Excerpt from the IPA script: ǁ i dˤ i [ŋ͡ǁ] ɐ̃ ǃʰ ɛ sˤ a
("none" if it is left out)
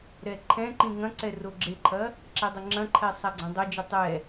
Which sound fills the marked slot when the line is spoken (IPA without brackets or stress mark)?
ŋ͡ǁ